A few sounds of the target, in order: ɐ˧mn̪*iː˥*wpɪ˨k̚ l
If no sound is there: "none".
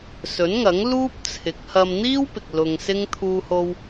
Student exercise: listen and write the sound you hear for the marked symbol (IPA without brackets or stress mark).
iː˥